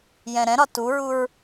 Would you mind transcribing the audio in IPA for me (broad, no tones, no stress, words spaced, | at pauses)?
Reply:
jɛ̃ɾɛ̃ɾɒ tuɹuɹ